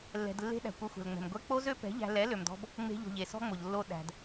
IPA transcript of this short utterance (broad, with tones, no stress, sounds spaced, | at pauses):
lː ɛ̤˨ d lː e̤˧ ɗ æ̤˨ kʷ œ˧ xʷ ɛ̤˨ l ŋ͡m ɛ̤˨ m ɡʷ ɛ˧ k͡p o˦ z ø˦ p ɛ̤˨˦ ʎ æ̤˧ l ɛ˨˦ l ø˨ m d ɔ̤˧ b | ŋ͡m e̤˧ ʎ o̤˨ ʎ e˨ s ɔ̤˦ ŋ͡m o˨ ʎ lː o˧ ɗ æ̤˨ d